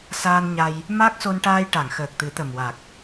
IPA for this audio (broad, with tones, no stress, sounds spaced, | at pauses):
s aː˧ n ɲ a˧ j | m a˦˥ k̚ s o˧ n ʈ aː˧ j ʈ a˨˩˨ ŋ x əː˨˩ k̚ t̪ ɨ˨˩˦ t̪ ə˨˩ m w a˨˩ k̚